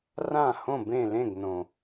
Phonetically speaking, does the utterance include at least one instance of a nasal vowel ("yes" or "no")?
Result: yes